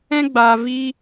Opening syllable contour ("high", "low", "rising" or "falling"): high